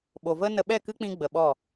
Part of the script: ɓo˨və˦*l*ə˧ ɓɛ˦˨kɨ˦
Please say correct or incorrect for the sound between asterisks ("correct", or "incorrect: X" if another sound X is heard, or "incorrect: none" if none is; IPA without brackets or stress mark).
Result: incorrect: n